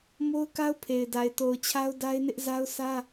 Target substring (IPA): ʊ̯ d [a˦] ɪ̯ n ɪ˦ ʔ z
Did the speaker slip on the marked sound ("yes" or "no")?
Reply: no